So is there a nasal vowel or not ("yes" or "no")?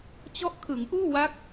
no